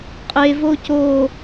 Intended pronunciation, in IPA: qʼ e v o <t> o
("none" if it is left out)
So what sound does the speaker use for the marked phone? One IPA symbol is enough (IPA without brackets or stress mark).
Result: c